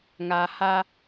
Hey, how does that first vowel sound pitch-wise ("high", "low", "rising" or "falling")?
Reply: low